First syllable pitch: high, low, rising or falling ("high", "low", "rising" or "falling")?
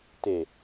low